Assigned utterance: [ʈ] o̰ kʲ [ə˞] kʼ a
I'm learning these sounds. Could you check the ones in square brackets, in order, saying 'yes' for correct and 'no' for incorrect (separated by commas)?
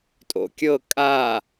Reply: no, no